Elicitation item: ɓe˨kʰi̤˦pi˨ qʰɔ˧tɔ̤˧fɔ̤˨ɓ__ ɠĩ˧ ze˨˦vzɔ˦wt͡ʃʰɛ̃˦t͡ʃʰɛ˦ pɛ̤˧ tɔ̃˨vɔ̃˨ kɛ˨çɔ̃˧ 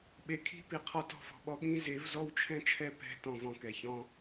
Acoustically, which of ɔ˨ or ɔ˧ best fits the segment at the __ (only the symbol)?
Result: ɔ˧